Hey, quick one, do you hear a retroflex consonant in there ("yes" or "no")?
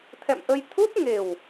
no